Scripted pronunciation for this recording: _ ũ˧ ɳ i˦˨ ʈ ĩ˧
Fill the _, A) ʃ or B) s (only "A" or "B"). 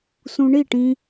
B